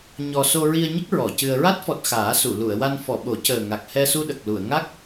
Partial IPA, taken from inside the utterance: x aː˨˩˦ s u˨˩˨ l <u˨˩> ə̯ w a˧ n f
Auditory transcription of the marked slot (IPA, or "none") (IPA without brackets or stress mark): u˨˩˨